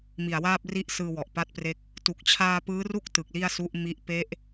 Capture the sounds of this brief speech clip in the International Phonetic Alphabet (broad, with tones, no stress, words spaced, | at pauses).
mi˨˩a̯waː˥˩p̚ri˥˩ʔsɯː˧ wɔ˨˩ʔpa˥˩t̚pre˥˩k̚ | tu˨˩k̚ t͡ɕʰaː˧ pɯː˦˥ru˥˩k̚ tɯ˨˩k̚li˥˩a̯su˦˥ʔmi˦˥ʔ pe˦˥ʔ